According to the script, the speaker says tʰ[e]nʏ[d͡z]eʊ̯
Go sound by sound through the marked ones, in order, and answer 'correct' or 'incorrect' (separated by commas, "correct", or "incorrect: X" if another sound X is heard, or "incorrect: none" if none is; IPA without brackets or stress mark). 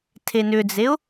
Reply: correct, correct